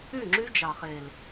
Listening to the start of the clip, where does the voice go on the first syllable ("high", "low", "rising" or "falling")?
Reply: falling